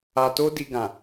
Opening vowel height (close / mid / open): open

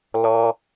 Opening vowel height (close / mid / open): mid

